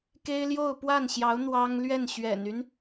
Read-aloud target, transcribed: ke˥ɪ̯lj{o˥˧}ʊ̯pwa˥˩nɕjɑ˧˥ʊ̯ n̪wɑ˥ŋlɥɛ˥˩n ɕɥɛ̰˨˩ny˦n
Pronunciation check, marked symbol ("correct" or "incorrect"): correct